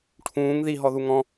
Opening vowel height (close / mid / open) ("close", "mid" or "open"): close